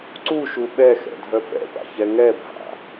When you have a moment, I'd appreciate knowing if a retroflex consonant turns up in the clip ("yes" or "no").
no